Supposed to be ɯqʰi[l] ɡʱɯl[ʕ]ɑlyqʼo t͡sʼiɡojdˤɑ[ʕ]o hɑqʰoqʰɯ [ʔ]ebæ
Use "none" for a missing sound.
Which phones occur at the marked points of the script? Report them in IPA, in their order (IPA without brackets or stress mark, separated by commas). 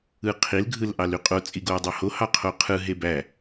l, ʔ, h, ɦ